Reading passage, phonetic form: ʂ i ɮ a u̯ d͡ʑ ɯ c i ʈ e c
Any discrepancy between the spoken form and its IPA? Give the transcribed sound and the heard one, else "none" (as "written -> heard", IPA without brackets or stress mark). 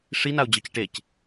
ɮ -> n